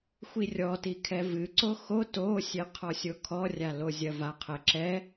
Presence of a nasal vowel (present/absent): absent